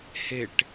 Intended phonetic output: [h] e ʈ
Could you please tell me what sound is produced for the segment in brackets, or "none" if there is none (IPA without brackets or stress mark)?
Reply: h